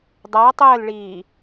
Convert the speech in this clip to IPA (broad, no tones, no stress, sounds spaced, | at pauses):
dˤ a tˤ əː l ɭ iː